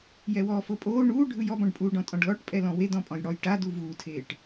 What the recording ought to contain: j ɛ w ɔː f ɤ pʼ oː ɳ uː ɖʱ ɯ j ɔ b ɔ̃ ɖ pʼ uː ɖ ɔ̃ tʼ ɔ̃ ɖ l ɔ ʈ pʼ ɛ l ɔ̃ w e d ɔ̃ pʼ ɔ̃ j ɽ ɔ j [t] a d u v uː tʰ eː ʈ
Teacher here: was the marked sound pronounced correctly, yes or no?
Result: no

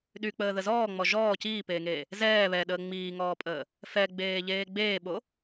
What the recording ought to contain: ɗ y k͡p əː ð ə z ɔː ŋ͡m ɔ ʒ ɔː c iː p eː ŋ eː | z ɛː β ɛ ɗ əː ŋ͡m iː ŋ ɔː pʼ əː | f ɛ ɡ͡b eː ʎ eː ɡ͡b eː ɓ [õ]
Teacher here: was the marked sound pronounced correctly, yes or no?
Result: no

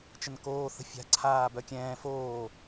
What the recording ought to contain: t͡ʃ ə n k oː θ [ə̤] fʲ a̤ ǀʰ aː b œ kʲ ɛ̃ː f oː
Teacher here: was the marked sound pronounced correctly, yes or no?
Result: yes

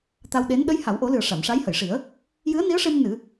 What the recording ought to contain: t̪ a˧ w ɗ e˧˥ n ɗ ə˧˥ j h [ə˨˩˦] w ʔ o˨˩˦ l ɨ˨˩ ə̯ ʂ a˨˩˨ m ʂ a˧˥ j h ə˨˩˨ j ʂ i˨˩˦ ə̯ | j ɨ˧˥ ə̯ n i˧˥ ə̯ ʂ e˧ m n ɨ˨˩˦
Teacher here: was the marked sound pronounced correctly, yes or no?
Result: no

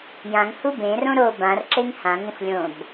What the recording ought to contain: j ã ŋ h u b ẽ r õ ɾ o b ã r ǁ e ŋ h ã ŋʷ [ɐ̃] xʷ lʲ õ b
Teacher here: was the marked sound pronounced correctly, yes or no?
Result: yes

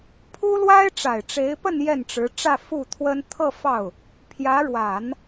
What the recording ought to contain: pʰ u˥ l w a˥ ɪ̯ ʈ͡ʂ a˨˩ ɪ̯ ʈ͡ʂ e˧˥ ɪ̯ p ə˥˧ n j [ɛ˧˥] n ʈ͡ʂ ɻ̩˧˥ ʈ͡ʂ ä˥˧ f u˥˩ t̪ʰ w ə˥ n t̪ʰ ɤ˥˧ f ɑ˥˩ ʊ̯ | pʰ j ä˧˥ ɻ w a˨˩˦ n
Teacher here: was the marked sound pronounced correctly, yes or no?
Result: no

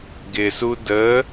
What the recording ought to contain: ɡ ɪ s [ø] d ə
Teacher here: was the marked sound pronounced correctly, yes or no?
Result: no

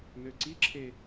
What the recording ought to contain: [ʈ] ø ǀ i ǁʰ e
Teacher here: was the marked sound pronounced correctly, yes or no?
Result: no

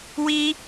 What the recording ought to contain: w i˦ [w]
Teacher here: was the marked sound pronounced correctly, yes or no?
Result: no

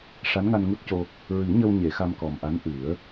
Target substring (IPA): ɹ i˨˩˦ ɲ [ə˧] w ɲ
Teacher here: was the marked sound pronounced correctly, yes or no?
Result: yes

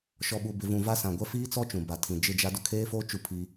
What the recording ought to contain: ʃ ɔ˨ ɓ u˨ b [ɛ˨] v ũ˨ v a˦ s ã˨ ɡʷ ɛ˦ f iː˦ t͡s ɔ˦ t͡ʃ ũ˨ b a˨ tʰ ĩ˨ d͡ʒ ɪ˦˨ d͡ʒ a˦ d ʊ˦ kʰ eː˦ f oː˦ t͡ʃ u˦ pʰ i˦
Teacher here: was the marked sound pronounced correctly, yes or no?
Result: no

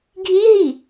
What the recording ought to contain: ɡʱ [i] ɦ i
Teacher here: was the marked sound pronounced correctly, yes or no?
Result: yes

